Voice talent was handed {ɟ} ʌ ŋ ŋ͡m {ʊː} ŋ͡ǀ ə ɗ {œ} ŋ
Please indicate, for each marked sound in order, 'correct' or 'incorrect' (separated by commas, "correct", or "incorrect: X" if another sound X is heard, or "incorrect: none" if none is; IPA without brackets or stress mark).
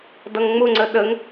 incorrect: d, incorrect: ʊ, incorrect: ə